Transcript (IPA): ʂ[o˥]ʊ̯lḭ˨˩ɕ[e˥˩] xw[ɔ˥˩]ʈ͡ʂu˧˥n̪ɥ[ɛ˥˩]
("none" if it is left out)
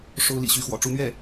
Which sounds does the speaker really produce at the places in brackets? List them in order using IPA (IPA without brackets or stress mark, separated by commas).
o˥, y˥˩, ɔ̰˨˩, ɛ˥˩